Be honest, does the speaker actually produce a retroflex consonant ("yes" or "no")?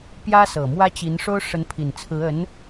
yes